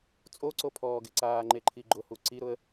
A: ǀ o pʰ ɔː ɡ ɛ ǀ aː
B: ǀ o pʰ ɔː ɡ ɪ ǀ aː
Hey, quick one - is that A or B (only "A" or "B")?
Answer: B